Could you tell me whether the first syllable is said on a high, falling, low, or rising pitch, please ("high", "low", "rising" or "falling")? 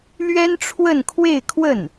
high